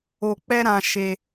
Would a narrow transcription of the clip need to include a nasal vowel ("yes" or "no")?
yes